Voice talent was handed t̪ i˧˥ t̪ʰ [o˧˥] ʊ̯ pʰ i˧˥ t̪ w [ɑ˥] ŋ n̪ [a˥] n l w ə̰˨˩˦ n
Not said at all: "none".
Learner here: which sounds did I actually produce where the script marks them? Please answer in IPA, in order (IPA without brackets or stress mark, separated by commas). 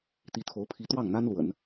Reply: o˧˥, ɑ˥˩, a˥